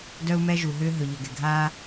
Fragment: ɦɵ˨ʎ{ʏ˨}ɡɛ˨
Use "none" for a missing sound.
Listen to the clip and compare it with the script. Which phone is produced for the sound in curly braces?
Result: ʏ˨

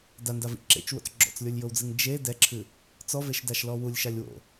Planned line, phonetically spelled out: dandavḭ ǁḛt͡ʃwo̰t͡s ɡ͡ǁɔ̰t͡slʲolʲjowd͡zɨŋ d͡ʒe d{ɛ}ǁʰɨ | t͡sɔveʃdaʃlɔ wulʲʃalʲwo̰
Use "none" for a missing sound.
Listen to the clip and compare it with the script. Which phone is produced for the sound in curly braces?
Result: ɛ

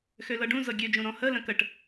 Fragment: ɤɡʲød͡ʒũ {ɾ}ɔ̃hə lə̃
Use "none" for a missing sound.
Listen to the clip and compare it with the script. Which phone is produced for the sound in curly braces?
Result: ɾ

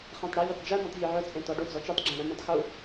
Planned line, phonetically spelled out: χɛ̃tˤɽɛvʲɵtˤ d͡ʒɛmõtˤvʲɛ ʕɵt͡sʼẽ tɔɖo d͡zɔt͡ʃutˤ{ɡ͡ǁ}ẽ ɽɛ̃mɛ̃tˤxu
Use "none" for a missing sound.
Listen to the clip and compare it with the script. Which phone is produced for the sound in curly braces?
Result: ɡ͡ǁ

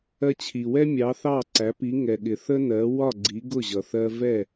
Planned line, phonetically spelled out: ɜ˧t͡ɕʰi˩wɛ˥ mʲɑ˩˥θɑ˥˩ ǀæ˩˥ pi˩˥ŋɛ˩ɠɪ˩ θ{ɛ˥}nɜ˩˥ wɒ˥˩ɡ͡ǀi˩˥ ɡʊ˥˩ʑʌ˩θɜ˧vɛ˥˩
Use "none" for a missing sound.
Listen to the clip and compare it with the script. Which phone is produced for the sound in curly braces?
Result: ə˥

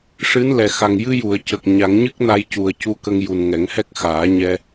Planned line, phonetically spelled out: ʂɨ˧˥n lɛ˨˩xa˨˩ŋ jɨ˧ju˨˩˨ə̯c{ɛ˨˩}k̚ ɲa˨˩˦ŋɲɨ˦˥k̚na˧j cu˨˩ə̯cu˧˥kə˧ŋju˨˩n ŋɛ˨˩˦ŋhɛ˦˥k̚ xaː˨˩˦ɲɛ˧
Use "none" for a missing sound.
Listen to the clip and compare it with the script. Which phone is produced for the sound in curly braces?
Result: ə˨˩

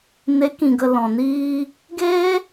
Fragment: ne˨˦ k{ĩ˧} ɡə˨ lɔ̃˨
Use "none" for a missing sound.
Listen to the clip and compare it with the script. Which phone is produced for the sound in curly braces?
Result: ĩ˨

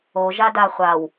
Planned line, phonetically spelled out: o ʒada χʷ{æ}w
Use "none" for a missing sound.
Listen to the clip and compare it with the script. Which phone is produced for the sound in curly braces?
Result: a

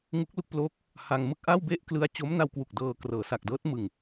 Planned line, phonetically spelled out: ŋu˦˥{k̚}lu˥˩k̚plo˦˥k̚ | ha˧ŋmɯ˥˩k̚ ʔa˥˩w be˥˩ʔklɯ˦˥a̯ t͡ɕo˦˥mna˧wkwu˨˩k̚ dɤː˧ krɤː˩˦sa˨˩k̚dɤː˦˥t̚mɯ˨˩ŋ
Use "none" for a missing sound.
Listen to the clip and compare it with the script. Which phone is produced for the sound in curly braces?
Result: k̚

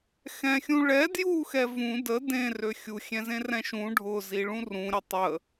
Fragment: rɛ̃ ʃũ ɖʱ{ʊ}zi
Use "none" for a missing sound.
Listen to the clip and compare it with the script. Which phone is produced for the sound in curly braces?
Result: ʊ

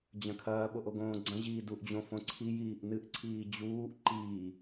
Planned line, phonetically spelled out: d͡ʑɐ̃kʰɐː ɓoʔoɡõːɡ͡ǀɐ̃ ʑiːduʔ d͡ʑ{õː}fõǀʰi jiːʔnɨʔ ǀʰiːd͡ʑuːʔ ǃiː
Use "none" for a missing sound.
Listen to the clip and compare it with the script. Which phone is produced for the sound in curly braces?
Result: õ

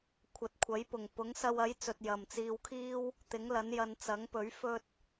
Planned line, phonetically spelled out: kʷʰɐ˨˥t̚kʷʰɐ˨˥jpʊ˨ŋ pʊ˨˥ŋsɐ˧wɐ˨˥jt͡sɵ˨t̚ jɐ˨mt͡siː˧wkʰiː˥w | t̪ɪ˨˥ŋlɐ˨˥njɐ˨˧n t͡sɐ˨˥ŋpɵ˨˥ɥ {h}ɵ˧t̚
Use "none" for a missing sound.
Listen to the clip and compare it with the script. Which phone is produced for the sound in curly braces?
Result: f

